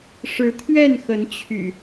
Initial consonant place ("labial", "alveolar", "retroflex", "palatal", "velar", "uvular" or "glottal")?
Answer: retroflex